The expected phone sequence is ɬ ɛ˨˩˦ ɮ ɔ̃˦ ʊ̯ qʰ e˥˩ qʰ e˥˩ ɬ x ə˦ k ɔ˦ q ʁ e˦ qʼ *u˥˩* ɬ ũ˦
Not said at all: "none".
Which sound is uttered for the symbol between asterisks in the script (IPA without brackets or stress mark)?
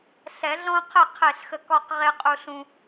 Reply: u˦